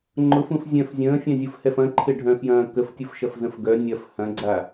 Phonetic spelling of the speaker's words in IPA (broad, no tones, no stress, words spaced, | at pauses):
ŋ͡ǃʊfũf zʲœ̃f zʲə̃ːfʲœ̃zʲufhɛf ɐ̃ǃʰɪɖʱœ̃fjɐ̃ː kəftʲʊfʃɐfzə̃f ɡœ nʲɐf hɐ̃ɡ͡ǀa